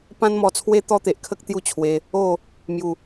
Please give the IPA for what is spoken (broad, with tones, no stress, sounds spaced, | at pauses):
p ã˦ n m ɔ˧ t͡sʰ w e˦ t̪ ɔ˦ t̪ e˨ ʔ kʰ ə˦ k̚ t̪ j u˦ t͡ɕʰ w e˧ | o˥˧ | m j u˨˩